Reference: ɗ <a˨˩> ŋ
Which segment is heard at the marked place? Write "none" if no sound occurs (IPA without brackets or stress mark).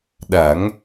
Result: a˨˩˦